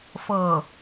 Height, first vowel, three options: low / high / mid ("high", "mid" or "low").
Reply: mid